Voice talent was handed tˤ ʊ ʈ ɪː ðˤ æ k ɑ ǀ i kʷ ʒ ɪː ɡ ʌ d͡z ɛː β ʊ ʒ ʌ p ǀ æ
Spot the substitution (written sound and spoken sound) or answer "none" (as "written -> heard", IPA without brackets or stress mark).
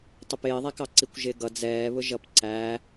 ʈ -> p